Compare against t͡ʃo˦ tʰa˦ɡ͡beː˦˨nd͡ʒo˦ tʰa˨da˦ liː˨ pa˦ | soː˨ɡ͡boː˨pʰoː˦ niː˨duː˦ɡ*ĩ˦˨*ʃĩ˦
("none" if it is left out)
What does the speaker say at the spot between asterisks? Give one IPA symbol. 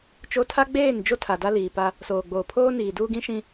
ĩ˦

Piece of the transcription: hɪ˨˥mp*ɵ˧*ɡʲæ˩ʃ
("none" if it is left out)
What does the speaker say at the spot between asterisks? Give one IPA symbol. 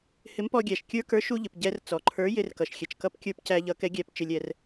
ɔ˧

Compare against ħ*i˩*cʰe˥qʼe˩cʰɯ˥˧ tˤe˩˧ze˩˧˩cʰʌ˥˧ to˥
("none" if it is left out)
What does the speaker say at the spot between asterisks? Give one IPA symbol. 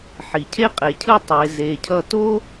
i˩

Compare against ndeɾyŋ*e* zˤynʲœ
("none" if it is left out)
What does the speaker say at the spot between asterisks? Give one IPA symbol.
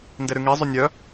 i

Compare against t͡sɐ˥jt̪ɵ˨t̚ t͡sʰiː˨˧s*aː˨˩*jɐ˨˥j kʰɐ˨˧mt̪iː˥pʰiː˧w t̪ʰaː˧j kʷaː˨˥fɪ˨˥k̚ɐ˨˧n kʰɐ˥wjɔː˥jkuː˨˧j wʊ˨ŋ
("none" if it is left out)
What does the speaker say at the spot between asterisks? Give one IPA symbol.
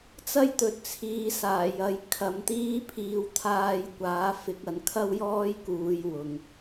aː˨˩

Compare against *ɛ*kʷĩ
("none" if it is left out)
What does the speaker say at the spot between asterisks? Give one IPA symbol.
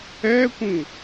ɛ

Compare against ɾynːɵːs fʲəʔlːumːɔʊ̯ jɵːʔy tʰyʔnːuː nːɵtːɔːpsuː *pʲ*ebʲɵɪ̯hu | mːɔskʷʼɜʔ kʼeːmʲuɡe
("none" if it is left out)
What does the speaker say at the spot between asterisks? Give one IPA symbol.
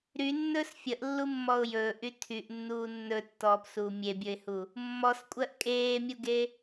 mʲ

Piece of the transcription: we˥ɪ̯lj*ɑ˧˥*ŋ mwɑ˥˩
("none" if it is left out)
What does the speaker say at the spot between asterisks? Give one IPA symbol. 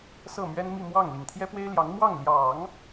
ɑ˧˥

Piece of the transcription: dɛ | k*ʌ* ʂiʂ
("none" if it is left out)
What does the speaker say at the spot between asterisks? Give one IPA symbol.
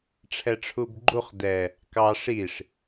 ɑ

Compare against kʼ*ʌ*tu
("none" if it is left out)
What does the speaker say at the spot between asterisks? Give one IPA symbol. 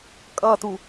ʌ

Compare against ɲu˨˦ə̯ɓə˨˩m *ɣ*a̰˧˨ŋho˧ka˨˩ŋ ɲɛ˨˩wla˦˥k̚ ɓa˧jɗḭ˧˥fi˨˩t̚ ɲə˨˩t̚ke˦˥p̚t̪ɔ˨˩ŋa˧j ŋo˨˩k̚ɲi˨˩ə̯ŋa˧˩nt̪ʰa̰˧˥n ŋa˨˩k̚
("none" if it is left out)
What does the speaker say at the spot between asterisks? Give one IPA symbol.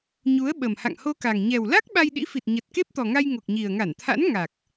h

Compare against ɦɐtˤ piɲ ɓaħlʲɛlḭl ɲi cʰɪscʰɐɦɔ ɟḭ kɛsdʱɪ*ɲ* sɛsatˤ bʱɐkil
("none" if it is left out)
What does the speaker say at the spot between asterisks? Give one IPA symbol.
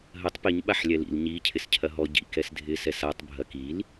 none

